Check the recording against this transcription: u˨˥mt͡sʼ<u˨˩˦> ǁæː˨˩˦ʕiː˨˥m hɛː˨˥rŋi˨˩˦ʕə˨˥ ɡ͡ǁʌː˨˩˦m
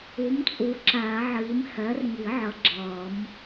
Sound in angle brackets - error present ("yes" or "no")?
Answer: yes